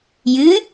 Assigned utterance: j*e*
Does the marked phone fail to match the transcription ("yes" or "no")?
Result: yes